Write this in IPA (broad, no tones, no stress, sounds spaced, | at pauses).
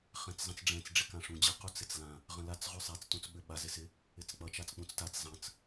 χ ɛ̃ t͡s zˤ ə̃ t͡s ɖ͡ʐ ɛ̃ t͡s ɖ͡ʐ ɪ k ã ʂ ũ d͡ʑ ə q u t͡s ɪ t͡s l ã | ʁ ə̃ l a t͡s ʁ ʉ sˤ ɛ t͡s t ũ t͡s ɓ ʏ ɓ a z ɪ s ɪ | ɪ t͡s k͡p ʌ t͡ʃ a t͡s k͡p ũ t͡s t a t͡s zˤ ə̃ t͡s